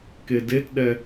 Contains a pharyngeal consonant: no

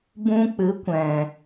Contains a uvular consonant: no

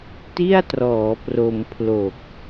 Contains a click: no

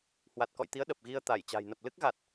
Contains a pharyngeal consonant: no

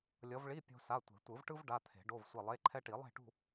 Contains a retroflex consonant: yes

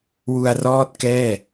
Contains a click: no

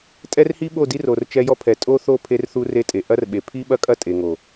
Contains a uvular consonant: no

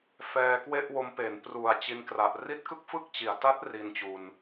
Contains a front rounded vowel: no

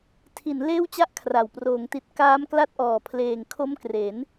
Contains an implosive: no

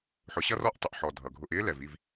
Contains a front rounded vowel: no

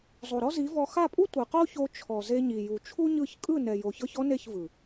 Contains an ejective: yes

